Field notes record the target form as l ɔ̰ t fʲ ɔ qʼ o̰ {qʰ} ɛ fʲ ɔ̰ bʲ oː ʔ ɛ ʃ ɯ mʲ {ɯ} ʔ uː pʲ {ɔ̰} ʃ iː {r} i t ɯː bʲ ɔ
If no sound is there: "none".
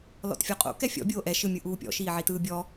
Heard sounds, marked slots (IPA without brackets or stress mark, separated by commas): k, ɯ, ɔ̰, ʕ